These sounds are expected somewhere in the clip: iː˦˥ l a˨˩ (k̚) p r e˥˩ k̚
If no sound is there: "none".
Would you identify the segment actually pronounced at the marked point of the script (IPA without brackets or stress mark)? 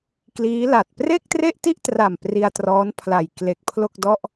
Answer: t̚